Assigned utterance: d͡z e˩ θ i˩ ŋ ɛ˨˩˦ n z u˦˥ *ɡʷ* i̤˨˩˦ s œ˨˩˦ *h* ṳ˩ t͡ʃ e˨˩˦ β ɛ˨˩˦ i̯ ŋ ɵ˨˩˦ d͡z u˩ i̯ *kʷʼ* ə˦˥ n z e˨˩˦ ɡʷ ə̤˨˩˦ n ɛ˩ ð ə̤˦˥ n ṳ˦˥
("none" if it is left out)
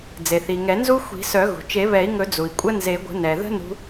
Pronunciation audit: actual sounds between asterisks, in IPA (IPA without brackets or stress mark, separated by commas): xʷ, ɣ, kʷʼ